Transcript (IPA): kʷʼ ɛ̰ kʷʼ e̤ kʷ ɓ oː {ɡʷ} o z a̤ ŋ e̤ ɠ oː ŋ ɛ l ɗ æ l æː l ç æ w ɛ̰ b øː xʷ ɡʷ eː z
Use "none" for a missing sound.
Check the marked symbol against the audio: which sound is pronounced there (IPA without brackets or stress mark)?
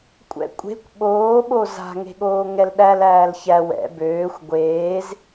ɓ